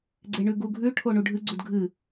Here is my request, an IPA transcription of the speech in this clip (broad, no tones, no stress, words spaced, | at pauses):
ɡ͡ǀeɳʉɡuɡʱʉ ʈʰoɳuɖʱɨɡ͡ǀud ɡʱɨ